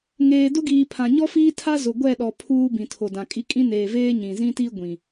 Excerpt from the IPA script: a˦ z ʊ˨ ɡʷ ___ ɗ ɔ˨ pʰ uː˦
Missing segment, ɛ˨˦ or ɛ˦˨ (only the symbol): ɛ˦˨